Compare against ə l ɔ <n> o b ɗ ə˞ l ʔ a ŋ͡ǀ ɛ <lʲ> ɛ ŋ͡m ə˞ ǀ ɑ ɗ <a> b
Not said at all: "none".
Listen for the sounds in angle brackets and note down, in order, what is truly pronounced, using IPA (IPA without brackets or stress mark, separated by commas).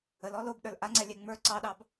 l, lʲ, ɑ